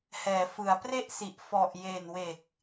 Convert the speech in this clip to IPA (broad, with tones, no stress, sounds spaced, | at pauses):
h ɛː˩˦ f ɯ˩˦ a̯ p r e˥˩ ʔ s i˨˩ ʔ f ɔ˨˩ ʔ j e˨˩ n w e˨˩ k̚